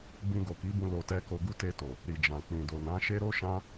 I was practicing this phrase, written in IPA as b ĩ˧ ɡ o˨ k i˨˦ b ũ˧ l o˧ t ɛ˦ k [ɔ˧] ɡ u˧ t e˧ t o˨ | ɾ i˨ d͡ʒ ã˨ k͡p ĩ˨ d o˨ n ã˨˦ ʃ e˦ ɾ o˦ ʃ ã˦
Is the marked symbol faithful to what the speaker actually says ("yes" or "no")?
no